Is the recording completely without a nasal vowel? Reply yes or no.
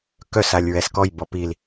yes